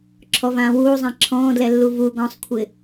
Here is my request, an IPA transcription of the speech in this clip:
ǁʰ ɔ v ãː w uː zˤ ɛ̃ ǁʰ ɔ̃ː d l ɛ lː u v u ɡ ɔ̃ sˤ kʷʰ ɪ

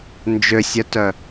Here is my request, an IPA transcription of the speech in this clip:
n d͡ʒ ø sʲ œ t œ

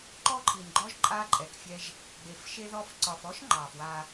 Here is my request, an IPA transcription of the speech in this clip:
ǃ ɔ˦ ǃʰ i˨ n ɡ͡ǃ ɔ˦ ʒ ǃʼ a˦ ǃʼ ɛ˨ k fʲ ɛ˦ ʒ | ɡ͡b e˨ f ʃ e˦ ð ɔ˦ f ǀ ɒ˨ f ɔ˦ ʃ ŋ͡ǃ ɑ˨ f w a˦

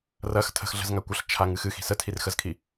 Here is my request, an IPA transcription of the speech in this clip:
r ɐ x tʰ ə̤ x ɮ ə̤ z ŋ a kʷ ə ɬ t͡ʃʰ a ŋ ɨ x ɨ x i̤ s ə tʰ i r x ə z kʰ i

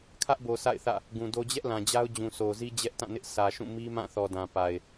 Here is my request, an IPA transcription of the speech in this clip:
kʰ ä˦ ʔ b o˨ sʰ a̰˦˨ ɪ̯ θ ä̰˦˨ | ɡ ũ˨ d o˦ d͡ʑ ɛ˦ ʔ l ã˨ d͡ʑ a˦ ʊ̯ d͡ʑ ũ˨ sʰ o˨ z i˦ d͡ʑ ɛ˦ ʔ t ã˦˨ n ɪ˦ ʔ s ä˨ ʃ ũ˦˨ m i˦ m ã˦˨ θ ɔ˨ d ã˨ p a˨ ɪ̯

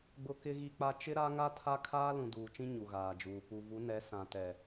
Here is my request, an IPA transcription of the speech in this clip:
ɡ͡b ʊ˦ k ɪ˦ ɣ i˦ k͡p a˦ t͡ʃ ɪ˦ ɾ a˦ ŋ a˦ tʰ a˦ kʰ aː˦ l ũ˨ d uː˨ t͡ʃ ĩ˦ ɲ u˨ ɣ aː˨ d͡ʒ uː˨ p u˨ v u˨˦ n ɛ˨˦ s ã˨ t ɛ˨

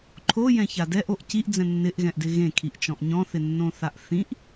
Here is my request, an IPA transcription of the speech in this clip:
ǃʰ o j ɛ̃ ç a d ɛ ʔ o ʔ c i ʔ d͡z ɛ̃ nː ɪ ʔ ɣ ɛ̃ ʔ d ɪ ɣ ẽ kʰ i ʔ t͡ʃ ɔ̃ ʔ ɲ ɔ̃ θ ɪ nː õ θ a ʔ θ ĩ ʔ

